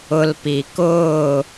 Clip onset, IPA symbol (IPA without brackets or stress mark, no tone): ʊ